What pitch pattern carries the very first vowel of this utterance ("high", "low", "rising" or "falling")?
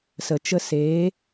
low